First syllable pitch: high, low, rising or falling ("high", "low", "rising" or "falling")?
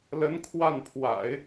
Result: rising